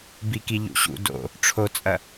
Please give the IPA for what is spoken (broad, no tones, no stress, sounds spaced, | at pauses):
b i k i ʎ ṵ ɕ ṵ d o̰ | ʈ͡ʂʰ o t͡sʼ ɐ